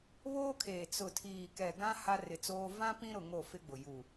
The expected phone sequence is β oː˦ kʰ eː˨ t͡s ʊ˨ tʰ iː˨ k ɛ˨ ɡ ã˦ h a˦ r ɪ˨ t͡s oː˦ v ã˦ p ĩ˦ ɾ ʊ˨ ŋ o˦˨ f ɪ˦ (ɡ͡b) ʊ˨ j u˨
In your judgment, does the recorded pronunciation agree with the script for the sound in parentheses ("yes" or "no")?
yes